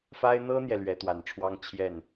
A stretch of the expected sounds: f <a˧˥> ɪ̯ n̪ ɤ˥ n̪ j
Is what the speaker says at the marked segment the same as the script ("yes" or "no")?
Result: no